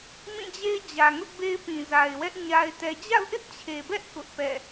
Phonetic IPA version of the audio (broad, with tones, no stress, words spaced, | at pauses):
mĩ˦˨d͡ʑe˦ɪ̯d͡ʑä˨ ŋʊ˦ʔbe˦ɪ̯pĩ˨ za˨ɪ̯wɛ˦ʔ ɲa˦ɪ̯tɛ˦ d͡ʑa̰˦˨ʊ̯ʔɪ˦ʔt͡ɕʰe˨bɛ˦ʔ kʊ˦ʔpɛ̰˦˨